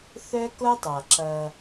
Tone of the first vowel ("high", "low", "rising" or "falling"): high